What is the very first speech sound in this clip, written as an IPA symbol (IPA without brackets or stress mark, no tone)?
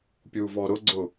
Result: pʲ